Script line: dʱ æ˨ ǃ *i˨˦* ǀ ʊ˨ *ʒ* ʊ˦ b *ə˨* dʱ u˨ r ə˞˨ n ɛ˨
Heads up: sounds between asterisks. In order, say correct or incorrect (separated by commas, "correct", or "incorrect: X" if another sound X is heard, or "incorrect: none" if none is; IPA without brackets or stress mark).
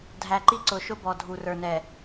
incorrect: i˦, incorrect: ʃ, incorrect: ɔ˨